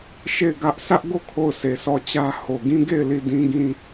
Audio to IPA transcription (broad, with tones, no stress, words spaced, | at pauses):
ʃe˦˨ɪ̯ɡä˦ʔ sʰä˦ʔɡo˦˨ kʰo˦˨ʊ̯sʰe˨sɔ˦˨t͡ɕä˦ ho˨ɡĩ˦ ɡe˦˨ɪ̯ li˦˨dĩ˦ɡĩ˦